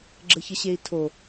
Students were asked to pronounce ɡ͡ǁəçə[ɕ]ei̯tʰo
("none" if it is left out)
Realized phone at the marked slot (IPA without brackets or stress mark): ɕ